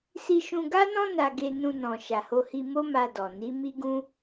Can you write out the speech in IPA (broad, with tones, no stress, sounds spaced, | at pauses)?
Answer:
s i˧ ʃ ũ˧ ɡ a˦ n ɔ̃˦ n a˧ ɡ e˧ n ũ˧ n ɔ̃˨ ʃ a˨ h o˧ h i˧ m o˦ m a˧ d ɔ˨ n i˨˦ m i˦ ɡ ũ˦